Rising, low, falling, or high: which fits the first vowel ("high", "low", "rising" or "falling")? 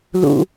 low